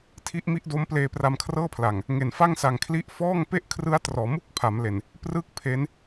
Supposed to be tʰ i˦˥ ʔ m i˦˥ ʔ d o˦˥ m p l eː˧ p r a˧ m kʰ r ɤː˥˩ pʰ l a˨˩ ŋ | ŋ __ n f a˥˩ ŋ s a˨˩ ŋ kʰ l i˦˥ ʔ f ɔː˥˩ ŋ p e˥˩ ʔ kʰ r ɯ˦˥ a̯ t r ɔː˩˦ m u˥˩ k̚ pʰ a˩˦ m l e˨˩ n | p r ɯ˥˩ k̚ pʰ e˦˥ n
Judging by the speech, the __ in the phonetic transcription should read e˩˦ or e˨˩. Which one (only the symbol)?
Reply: e˨˩